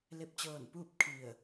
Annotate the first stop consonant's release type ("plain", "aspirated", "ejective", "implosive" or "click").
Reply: plain